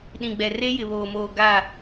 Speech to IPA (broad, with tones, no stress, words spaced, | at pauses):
ɗĩ˨ɡ͡bɛ˨re˦ jɪ˨βoː˨moː˨ ɡa˦˨